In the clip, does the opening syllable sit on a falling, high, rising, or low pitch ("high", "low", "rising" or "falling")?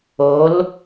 rising